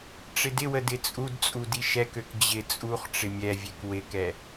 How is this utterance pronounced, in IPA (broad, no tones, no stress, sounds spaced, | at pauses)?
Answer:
ʈ͡ʂ ɪ d ɪ w ə d ɪ t͡sʼ u d t͡sʼ u d i ʃ ɛ k ø k d͡ʑ ɪ t͡sʼ u χ ʈ͡ʂ ɪ mʲ ɛ vʲ ɛ k w ɪ k ɛ